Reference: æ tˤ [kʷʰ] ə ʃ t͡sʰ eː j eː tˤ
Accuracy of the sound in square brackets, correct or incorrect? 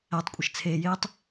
incorrect